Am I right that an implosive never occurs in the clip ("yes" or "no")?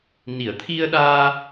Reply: no